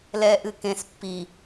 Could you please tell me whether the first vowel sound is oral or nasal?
oral